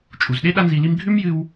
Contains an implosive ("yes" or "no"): yes